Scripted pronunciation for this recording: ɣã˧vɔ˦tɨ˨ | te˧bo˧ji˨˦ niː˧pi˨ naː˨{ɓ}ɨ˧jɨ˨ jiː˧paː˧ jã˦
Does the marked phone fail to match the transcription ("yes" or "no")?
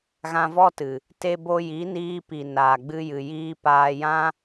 yes